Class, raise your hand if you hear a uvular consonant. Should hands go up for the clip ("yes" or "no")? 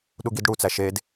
no